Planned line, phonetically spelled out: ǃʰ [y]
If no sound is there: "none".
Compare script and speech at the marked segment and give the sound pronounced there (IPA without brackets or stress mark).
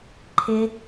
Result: ɪ